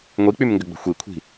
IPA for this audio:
ŋʷik͡pymŋɡʏɡ͡bə̤ xʷikʷʰi̤

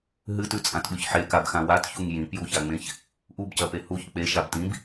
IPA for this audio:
ɦɨtʉt͡sʼãtɓʉç ħekabxã watçuŋ jĩpjuçaŋ͡mẽç | ʔubcɐpe huç k͡peʃab tĩb

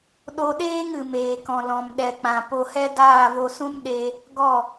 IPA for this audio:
ɗo˧ɗeː˦ŋɨ˨ meː˨kɔ̃˨ lɔ̃˨m ɗɛ˨k͡pã˨ po˧hɛ˦ daː˦˨vo˧sũ˦m ɗe˧ | ɡɔ˦˨

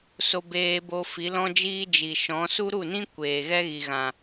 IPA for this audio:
so˧beː˧bo˧fi˨˦ lɔ̃˦d͡ʒiː˦ d͡ʒi˨ʃɔ̃˨˦ su˦ɾu˦˨nĩ˦ kʷeː˨ɣɛ˦ɣi˨ɣã˨

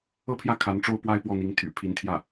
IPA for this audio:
ɤ˥˧pʰjä˥˩ kʰa˧˥nʈ͡ʂo˥ʊ̯ pwa˥ɪ̯pwɔ˥˩n̪i˧˥ŋ t̪ʰy̰˨˩pʰi˧˥nt̪ʰjä˥˩

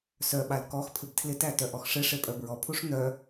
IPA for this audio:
sœɓal kɔxpʰɪb tʰlɪtæ tœʔɔxʂɪʂe pʼœbɹɔpʰuʂ n̪œ

